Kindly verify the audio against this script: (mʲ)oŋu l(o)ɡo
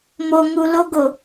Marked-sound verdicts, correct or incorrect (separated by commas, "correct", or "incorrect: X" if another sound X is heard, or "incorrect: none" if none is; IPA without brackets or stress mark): incorrect: m, correct